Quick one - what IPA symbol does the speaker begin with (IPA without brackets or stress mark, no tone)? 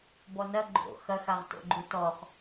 b